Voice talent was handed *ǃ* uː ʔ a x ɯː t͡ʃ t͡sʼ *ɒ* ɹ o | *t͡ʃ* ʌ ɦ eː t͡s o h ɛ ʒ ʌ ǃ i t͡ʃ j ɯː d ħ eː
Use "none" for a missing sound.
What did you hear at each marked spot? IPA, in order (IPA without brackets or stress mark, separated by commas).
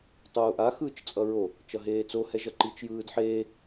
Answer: tˤ, ʌ, t͡ʃ